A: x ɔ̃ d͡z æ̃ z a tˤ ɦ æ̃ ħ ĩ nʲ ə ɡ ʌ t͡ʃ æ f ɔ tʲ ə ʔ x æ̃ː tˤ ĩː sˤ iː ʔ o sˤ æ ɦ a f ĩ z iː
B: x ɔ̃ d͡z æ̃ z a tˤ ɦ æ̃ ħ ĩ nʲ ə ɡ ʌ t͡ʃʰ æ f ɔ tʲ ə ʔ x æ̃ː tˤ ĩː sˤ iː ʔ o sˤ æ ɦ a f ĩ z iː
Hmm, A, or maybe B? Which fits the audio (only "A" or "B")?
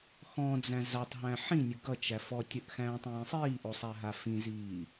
A